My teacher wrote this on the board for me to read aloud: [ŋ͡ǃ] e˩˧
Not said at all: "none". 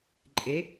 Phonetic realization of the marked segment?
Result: ǃʼ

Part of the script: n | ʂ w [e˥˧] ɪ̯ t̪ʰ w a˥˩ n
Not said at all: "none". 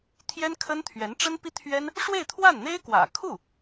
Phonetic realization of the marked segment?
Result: e˥˧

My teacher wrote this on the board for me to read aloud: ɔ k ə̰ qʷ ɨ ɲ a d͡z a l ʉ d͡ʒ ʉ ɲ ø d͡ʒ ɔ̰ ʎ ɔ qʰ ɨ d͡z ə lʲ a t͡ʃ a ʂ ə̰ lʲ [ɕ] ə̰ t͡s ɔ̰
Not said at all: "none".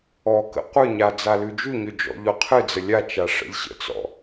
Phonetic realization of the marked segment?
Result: ɕ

